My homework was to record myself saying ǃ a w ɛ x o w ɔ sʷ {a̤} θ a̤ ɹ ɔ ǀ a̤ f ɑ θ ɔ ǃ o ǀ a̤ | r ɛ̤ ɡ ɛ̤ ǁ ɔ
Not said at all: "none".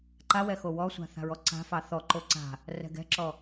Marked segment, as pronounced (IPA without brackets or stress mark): a̤